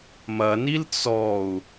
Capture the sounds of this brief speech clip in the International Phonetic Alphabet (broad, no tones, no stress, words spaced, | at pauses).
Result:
mɐnil t͡sɔu̯